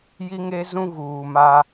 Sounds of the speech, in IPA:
j i˦ ŋ e˦ z ũ˦ ɣ uː˨ m a˦

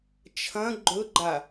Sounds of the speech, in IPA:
t͡ʃʰ ɐ̃ ɡ͡ǃ ɵ ɡ͡ǃ a

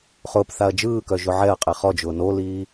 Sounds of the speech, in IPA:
χ ʊː p θ a ɐ̯ d͡ʒ ɯː k œ ʒ ʊ ʕ ɛ ɐ̯ qʼ e χ ɔ d͡ʒ ʊː n o l iː

